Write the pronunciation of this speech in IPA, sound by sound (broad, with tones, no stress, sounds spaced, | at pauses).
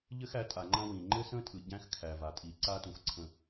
ʎ ɘ˦ x æ˨˦ tʼ a˨ ŋ͡ǃ ã˦ w ĩ˨ ŋ͡ǃ ɘ˦ s ə̃˦ tʼ ɯ˨ ɟ æ̃˦ x kʰ æ˨ v a˨ tʼ i˨ ǀ a˦ t ũ˨ x ǀʰ ə̃˨